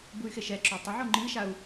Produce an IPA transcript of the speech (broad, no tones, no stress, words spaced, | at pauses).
buy̯xeʃɛǁo tˤeʕo ŋ͡ǃiʃau̯